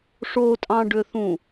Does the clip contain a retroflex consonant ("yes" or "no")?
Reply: yes